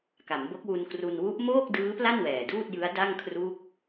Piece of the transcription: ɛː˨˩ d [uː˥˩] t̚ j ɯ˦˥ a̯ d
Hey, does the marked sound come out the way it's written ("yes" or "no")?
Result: yes